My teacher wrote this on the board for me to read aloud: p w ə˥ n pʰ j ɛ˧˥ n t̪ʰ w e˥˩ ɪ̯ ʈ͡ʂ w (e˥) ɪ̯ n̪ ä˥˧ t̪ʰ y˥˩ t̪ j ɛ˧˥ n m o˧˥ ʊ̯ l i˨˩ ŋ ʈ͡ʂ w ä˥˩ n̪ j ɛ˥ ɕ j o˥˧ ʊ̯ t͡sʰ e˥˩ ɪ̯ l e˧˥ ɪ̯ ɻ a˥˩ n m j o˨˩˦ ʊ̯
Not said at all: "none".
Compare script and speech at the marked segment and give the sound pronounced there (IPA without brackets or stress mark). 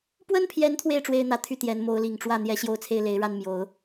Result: e˥